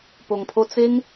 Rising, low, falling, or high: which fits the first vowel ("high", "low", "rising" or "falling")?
low